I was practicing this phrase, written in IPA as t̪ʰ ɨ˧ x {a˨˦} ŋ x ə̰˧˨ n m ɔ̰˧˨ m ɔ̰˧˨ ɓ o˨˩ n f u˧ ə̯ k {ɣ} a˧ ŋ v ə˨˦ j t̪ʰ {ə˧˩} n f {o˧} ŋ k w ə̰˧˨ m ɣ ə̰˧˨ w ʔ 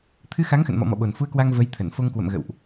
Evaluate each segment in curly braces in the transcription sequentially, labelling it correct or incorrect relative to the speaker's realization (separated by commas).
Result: correct, incorrect, correct, correct